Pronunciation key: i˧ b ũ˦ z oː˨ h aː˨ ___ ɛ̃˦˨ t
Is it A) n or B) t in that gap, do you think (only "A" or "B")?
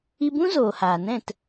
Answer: A